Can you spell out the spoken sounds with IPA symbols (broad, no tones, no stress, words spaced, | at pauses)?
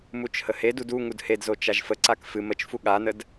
mut͡ʃhəhedud u ŋudhedzo t͡ʃaʒfəǀak fɨ mət͡ʃfu ɠanəd